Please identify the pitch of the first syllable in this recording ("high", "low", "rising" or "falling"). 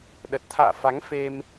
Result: low